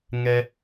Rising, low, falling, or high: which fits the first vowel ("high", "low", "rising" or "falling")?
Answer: high